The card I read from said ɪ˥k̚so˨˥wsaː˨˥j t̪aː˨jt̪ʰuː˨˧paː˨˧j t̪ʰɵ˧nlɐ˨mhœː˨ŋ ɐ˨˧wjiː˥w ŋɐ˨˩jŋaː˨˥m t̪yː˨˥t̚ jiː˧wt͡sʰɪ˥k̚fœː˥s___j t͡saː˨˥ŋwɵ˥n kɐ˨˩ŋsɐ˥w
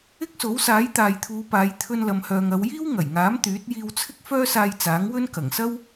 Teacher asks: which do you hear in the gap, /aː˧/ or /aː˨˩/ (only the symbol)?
aː˧